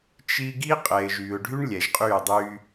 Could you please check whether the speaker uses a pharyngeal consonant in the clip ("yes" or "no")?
no